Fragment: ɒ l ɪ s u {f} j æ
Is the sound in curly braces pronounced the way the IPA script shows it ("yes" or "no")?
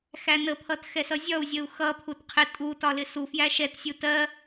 yes